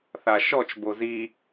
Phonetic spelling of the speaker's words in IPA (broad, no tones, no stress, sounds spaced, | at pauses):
θ a ʃ ɔ t͡ʃ b o z i